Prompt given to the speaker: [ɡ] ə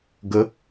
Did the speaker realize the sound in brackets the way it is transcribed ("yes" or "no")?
yes